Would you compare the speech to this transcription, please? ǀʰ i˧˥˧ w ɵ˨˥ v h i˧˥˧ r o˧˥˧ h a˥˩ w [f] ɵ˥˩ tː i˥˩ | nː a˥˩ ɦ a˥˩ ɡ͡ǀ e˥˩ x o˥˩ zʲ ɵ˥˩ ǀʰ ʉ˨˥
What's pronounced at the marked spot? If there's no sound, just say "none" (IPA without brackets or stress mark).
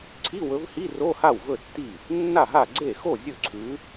v